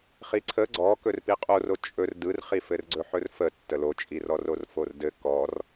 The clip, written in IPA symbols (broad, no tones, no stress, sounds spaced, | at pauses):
χ i ǀʰ ə ɡ͡ǀ ɔ k ɵ r p i qʼ o r o t͡ʃʼ ɵ r d ɯ r χ i f ɘ r ɡ͡ǀ ɵ ħ ɵ r f ə tː ə l o t͡ʃʼ i r ɔ r o r f o r d ɘ k ɔ r